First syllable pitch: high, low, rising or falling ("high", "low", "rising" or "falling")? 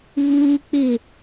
high